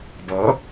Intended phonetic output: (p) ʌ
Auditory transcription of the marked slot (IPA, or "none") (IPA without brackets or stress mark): b